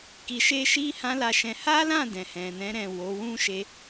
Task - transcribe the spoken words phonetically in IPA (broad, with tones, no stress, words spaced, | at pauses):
ki˧ʃe˦ʃi˦ hã˦la˦˨ʃɛ̃˧ ha˦lã˦˨ dɛ̃˨hɛ̃˨nɛ̃˨˦ ɾɛ̃˦˨ wo˨˦wũ˦ ʃe˦